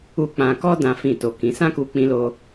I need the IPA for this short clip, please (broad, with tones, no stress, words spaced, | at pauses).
u˦ k͡pã˧kɔ˦ dã˦fĩ˦˨to˧kĩ˧ sã˦ku˧k͡pĩ˧lo˧